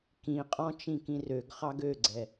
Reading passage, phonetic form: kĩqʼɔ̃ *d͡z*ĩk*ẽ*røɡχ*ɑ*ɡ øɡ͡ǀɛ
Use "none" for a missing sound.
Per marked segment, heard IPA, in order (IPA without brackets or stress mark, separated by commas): t͡ʃ, ĩ, ɑ